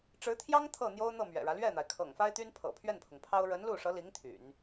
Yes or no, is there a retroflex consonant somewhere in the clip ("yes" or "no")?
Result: yes